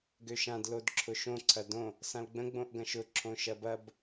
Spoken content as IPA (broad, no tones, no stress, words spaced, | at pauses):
ɡøʃãd lodǁʰʊʃõ ǀʰɐdõ | sãlɡ͡bə̃ ɡ͡bõʔɡɐ̃ʃʊ ǁʰõʃɐbɐb